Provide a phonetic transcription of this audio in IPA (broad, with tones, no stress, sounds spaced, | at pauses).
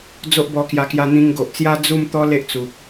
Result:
d͡z o˦ ʔ b ɔ˧ k j a˧ k j a˧ n̪ ĩ˧ ŋ ɡ o˨ ʔ t͡s j a˦ d͡z u˥˧ m t̪ ɔ˦ l e˦ ʔ t͡s u˨ k̚